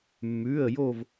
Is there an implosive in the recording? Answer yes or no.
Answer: no